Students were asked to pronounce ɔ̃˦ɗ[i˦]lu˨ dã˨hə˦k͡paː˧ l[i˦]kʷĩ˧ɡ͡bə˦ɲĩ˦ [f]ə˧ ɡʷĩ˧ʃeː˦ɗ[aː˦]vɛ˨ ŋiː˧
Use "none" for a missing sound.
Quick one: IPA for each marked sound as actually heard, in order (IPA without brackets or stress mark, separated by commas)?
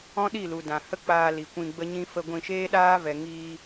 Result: i˦˨, i˨, f, aː˦